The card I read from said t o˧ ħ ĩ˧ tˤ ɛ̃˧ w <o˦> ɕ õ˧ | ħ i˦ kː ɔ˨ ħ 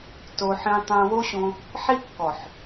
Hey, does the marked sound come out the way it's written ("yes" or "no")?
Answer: yes